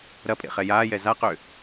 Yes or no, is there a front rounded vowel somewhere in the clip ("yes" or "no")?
yes